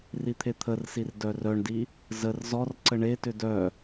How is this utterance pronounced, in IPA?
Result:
rit̪ʰet̪ʰərsir dœrœɳdi | zər zɔr ǀəɳetʏ dœ

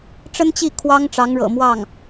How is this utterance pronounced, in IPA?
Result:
ʈ͡ʂə˥nt͡ɕi˥˩ kʰwɑ˥ŋʈ͡ʂɑ˧˥ŋɻɤ̰˨˩mwɑ˥˩ŋ

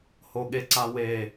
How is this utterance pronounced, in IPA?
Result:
hoɠeǀawe

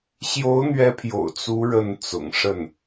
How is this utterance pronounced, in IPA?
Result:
ɕjo˧˥ʊ̯n̪ɥɛ˧˥pʰjo̰˨˩ʊ̯ t͡su˧˥ ɻə˥˩n t͡sʊ̰˨˩ŋʂə˥˩n

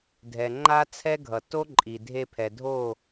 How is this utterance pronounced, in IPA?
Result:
dʱɛ˨ŋ͡ǃa˦ t͡sʰɛ˦ɡʱʌ˨ to˦ǃʼi˨ dʱe˧pʰɛ˨dʱo˦˨

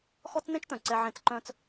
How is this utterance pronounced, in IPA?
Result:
xɔ˦t͡sn̪ẽ˦t͡ʃt̪œ̃˨ ǀɛ˦ʕẽ˦˨t͡s ǃœ̃ː˦t͡s

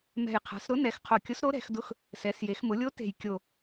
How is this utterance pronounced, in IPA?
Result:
mɛ̤˨˩jqʰa̤˩˧sɾʊ˧˥ nɛ˩˧x qʰo˨˩kʲʊ˧˥s ɾo˧˥ɾɛ̤˩˧xdʊ˧˥x | sɛ˩˧sje˩˧xmʊ˩˧lʲo˧˥ te̤˨˩j kʲo˨˩

